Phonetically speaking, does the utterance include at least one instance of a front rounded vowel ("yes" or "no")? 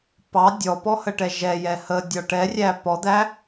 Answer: no